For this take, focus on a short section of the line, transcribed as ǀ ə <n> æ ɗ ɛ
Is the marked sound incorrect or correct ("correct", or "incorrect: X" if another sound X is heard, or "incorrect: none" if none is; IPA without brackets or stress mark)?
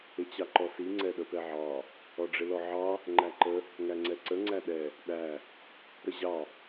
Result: incorrect: ŋ͡ǀ